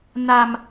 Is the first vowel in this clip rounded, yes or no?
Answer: no